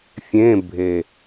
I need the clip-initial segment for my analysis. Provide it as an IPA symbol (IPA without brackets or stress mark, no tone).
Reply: fʲ